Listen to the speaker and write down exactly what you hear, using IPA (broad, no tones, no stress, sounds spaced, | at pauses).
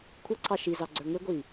kʷʰ ʌ ǀʰ ɑ ʃ i z ɑ ɡ͡ǀ ə˞ ŋ ɪ ɡʷ i